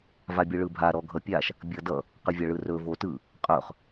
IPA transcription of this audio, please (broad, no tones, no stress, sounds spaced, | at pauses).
v a bʲ ɯ ɭ ɯ bʱ a ɾ ɔ ɡʱ ʌ pʲ a ʃ | bʲ ʌ d ʌ | q ɯ vʲ ɐ ɭ ɯ r ɵ v o t ɯ | qʼ ɵ χ